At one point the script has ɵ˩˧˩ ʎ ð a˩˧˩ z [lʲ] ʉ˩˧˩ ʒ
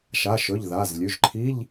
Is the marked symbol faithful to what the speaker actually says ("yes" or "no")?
yes